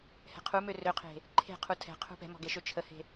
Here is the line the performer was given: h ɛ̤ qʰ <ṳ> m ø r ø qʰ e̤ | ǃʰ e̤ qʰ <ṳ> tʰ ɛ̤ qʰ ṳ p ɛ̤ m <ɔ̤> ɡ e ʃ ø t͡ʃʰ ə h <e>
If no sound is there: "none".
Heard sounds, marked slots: u, u, ɔ̤, e̤

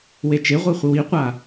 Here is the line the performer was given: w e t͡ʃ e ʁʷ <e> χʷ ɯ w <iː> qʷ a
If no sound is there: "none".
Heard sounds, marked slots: e, i

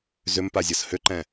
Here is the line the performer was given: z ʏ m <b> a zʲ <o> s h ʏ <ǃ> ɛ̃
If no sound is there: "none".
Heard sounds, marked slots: p, ɤ, ǃ

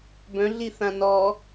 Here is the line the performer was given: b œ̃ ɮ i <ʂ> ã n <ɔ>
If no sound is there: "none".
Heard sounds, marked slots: θ, ɔ

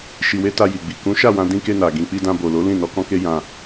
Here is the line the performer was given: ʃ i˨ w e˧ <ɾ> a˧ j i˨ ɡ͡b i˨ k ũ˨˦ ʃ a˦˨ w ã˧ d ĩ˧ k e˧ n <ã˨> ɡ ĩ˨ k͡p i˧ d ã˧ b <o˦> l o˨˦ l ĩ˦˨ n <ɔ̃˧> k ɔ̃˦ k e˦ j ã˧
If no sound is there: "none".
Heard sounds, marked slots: t, a˨, o˨, ɔ˧

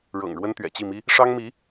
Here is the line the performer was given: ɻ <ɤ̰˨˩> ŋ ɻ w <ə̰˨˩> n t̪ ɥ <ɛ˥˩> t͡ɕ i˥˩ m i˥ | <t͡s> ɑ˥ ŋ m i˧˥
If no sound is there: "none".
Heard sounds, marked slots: ɤ̰˨˩, ə˥, ɛ̰˨˩, ʂ

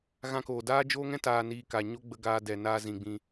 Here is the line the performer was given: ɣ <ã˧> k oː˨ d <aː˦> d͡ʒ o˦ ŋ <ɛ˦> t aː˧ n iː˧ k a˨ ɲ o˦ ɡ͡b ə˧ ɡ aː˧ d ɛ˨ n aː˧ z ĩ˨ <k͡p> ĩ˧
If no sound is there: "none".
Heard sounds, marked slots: ã˧, aː˦, ɛ̃˦, ɡ͡b

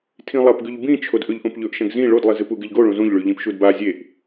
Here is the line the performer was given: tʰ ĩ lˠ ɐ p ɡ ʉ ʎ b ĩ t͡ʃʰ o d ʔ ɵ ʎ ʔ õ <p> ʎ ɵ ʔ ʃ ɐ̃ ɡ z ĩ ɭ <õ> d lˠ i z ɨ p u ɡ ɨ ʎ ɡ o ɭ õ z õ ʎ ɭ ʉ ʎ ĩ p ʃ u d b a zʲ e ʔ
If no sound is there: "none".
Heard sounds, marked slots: p, o

